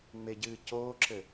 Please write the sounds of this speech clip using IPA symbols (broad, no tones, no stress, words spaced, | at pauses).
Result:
ŋ͡meɟɨːcoːǁɘ